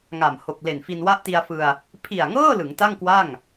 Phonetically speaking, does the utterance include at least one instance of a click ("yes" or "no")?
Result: no